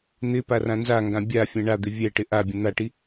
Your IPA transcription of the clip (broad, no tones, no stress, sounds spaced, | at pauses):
n̪ ɪ p a r ã n z a ŋ ɡ ã bʲ a fʲ ɛ̃ ɳ a d̪ ɪ vʲ ɛ ʈ ɪ ʔ a bʲ ə̃ n̪ a ʈ i